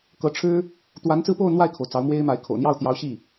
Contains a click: no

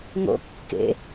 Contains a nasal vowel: no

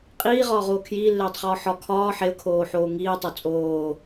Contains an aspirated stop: yes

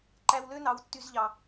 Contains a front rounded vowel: yes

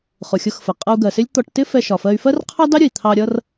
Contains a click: no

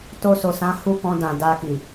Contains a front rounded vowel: no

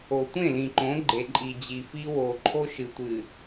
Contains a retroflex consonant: no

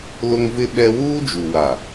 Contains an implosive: yes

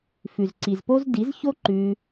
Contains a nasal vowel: no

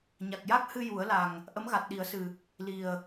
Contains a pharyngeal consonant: no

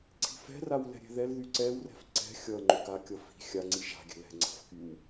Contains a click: yes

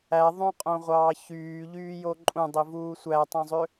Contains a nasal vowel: yes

